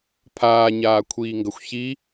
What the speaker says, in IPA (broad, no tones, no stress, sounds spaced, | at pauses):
pʰ aː ɲ aː kʷʰ iː ŋ ɡ ɐ xʷ ç i